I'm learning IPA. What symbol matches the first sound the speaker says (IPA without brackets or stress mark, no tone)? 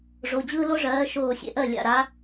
ʐ